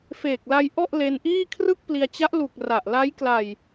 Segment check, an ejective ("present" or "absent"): absent